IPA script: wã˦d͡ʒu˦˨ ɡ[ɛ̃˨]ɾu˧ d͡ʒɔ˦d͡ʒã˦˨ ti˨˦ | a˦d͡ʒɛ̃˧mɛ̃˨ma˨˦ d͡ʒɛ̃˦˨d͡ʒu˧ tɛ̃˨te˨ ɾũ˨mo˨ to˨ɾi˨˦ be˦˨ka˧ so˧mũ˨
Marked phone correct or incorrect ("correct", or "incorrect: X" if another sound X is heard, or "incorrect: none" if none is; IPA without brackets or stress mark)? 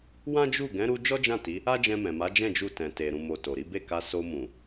incorrect: ɛ̃˨˦